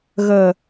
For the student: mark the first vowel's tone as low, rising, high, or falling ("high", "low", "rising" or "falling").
low